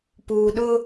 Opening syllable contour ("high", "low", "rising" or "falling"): low